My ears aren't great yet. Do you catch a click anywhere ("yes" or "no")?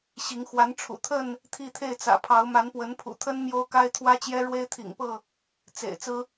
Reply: no